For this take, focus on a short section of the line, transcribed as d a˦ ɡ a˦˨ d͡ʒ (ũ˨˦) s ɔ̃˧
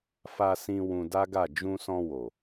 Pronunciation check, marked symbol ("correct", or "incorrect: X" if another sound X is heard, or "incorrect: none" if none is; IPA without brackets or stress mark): incorrect: ũ˧